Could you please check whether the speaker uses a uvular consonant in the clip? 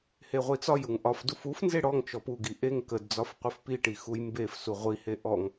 yes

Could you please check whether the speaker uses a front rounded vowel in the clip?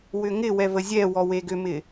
yes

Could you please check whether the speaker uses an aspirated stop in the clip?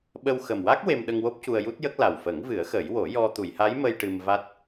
no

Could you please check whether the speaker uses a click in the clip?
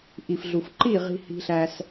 yes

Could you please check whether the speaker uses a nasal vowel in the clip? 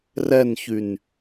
no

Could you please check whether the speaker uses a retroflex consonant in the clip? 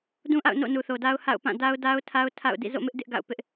no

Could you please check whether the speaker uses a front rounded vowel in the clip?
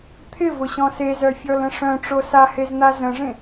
yes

